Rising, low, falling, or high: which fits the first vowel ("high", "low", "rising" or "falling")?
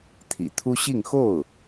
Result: low